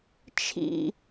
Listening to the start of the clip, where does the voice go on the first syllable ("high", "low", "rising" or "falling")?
falling